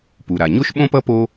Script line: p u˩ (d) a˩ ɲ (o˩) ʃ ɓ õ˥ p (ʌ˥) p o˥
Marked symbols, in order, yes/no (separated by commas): no, no, yes